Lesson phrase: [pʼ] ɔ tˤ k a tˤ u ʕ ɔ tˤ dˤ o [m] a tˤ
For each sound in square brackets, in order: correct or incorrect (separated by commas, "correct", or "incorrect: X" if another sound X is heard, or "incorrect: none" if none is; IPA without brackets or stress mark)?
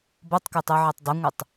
incorrect: b, incorrect: ŋʷ